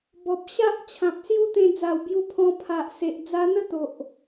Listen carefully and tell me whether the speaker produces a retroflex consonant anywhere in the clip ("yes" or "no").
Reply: no